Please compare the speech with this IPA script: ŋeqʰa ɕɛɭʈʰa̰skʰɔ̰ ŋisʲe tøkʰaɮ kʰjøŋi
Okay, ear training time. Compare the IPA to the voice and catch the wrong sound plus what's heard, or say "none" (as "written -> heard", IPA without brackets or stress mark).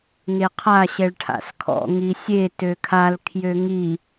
ɮ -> l